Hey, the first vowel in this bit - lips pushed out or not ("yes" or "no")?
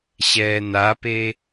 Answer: no